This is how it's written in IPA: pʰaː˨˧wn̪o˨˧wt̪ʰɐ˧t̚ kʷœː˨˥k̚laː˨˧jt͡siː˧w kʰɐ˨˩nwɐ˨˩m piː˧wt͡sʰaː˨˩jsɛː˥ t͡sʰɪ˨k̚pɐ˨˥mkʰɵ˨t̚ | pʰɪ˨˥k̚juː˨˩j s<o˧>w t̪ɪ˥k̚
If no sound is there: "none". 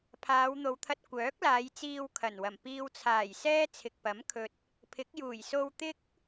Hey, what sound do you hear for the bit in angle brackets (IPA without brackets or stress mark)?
o˧